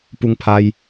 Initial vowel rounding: rounded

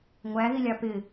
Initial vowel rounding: unrounded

